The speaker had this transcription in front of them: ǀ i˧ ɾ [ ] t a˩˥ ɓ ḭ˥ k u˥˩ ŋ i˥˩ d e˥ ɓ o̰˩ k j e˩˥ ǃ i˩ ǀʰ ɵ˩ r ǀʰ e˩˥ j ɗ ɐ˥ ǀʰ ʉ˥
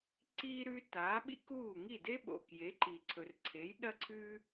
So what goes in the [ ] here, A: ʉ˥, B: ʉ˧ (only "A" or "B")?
B